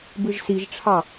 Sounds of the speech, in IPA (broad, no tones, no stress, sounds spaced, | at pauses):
b ɯ ʒ s i ʒ ʈ͡ʂʰ ɑ